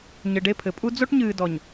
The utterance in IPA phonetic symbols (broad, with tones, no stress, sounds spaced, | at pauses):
ɲ ɘ˨ ɖ e˦˨ pʰ ɘ˨ pʼ u˦ d͡z o˦ ʈ ɲ ɨː˨ d ɔ˨ ɲ